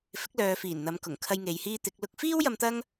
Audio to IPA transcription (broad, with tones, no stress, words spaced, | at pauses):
fɪ˨˥k̚lœː˨fiː˨˩n n̪ɐ˨˧m kʊ˨˩ŋkʰɐ˧j ŋe˨jhiː˧ t̪ɪ˨˥k̚lʊ˥k̚ fiː˥w jɐ˧mt̪ɐ˥ŋ